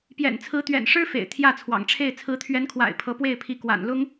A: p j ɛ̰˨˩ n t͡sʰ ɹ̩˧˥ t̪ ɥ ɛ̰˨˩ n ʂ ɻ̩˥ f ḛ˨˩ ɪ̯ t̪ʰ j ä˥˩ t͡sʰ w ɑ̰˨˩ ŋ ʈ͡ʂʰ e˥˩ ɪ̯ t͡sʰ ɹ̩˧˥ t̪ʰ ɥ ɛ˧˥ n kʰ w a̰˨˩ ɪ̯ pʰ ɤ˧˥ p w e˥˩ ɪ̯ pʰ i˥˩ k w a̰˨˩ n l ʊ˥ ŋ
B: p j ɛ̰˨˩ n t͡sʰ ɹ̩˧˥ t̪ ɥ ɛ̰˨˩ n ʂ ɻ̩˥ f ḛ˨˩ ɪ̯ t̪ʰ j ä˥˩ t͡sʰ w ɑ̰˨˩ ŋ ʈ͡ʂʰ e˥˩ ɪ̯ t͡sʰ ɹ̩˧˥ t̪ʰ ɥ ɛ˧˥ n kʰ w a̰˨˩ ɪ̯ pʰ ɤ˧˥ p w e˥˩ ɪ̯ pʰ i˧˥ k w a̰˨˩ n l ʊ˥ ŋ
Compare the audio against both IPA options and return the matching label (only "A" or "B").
B